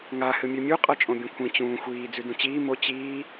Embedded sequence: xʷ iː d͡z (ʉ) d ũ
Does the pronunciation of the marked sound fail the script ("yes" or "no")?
no